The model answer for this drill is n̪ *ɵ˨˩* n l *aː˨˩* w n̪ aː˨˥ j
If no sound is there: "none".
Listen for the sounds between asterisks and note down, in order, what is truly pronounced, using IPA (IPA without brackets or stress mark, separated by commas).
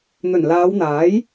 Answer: ɵ˨˩, aː˨˧